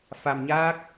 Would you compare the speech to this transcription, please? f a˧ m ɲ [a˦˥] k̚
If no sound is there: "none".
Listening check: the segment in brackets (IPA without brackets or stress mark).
aː˦˥